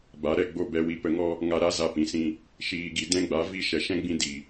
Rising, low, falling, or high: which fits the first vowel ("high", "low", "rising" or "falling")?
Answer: rising